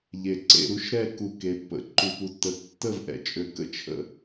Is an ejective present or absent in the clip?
present